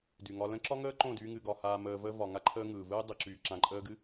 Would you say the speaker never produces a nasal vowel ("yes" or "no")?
no